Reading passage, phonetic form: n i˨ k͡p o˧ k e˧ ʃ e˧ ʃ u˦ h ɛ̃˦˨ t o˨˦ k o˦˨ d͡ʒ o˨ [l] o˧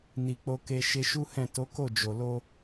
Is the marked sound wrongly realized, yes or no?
no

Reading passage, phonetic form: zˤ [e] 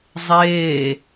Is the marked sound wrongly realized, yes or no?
yes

